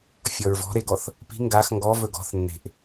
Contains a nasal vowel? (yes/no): no